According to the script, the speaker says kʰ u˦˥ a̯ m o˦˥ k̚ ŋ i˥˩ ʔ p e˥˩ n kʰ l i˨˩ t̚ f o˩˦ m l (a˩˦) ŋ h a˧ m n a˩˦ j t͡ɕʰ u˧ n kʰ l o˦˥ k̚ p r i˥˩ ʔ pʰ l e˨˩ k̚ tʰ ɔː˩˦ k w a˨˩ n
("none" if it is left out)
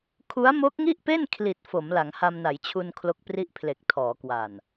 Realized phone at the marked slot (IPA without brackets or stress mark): a˩˦